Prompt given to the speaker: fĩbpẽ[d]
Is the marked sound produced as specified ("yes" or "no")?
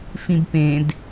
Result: yes